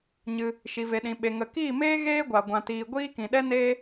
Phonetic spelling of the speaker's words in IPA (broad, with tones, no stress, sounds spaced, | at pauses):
ɲ ɨ˧ | ʃ i˨ v e˨ ɗ ĩ˨ ɓ e˨ ŋ ə˨ k iː˦˨ m eː˦ ɣ eː˦ ɡʷ a˨ ɡʷ ã˧ t iː˧ ɡʷ iː˦ k ĩ˨ ɗ ɛ˦ n eː˦